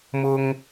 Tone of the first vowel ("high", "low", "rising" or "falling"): high